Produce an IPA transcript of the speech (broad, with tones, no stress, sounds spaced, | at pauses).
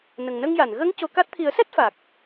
n ə˨˩ ŋ n ə˧ ŋ j a˨˩˨ n ɣ ə˧˥ ŋ c o˧˥ k a˦˥ t̚ t̪ʰ i˨˩˦ ə̯ s ɛ˦˥ t̚ f a˨˩ k̚